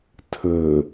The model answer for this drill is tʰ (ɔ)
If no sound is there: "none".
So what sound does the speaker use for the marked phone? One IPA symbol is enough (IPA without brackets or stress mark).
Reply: ə